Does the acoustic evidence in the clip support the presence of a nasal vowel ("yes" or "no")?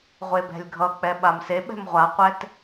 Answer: no